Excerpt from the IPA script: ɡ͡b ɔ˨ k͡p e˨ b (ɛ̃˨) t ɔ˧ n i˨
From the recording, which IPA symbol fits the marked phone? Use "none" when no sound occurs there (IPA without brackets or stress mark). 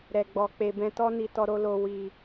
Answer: ɛ̃˧